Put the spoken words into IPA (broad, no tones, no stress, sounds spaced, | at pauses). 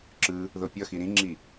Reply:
ǁ ɯ | ð o pʲ ʌ x i ɾ ĩ ŋ͡ǁ i